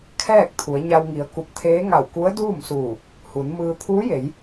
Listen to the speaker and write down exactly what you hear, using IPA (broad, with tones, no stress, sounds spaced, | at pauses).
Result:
kʰ ɛː˥˨ k̚ t̪ʰ u˩˧ ə̯ ɲ a˧ w ŋ i˩˧ ə̯ k u˧˩ p̚ t̪ʰ eː˧˥ ŋ a˧˩ w k u˧˥ ə̯ d uː˥˨ m s uː˧˩ | h u˩˧ n m ɯː˧ t̪ʰ uː˧˥ j e˩˧ j